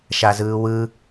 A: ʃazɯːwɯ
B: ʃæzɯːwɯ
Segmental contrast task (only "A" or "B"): A